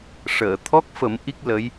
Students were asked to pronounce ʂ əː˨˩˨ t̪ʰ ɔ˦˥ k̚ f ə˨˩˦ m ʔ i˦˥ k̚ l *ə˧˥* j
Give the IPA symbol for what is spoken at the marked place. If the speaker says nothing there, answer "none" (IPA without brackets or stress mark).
ə˧˥